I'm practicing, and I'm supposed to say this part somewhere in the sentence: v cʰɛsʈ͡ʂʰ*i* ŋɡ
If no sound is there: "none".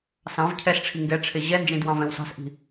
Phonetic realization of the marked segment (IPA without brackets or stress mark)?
i